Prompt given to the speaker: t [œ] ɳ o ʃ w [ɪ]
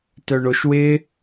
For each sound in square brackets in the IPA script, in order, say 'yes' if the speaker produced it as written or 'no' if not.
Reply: yes, yes

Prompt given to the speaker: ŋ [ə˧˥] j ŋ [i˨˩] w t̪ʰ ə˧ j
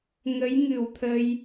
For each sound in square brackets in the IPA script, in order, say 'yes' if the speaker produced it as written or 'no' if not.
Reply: yes, no

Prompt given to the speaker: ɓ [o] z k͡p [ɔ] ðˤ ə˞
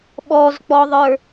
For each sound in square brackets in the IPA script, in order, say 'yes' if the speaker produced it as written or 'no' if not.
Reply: no, yes

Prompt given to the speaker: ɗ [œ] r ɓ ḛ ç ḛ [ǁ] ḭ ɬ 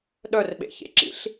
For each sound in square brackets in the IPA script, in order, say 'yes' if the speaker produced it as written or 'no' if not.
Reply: yes, yes

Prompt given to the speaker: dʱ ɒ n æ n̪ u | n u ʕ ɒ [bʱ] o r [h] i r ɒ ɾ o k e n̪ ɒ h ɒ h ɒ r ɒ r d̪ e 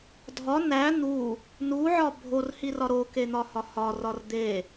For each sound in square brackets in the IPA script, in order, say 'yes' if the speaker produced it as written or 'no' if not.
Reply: yes, yes

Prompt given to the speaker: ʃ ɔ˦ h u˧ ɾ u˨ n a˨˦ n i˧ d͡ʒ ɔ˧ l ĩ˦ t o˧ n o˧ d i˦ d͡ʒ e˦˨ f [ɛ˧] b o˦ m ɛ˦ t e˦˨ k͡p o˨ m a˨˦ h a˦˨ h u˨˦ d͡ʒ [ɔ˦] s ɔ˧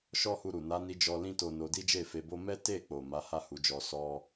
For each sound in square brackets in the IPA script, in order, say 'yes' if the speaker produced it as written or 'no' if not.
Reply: no, no

